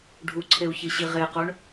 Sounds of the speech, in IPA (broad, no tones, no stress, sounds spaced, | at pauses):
ɖʱ u ǀʰ e u̯ ç i ɕ i ʁ e q o ɳ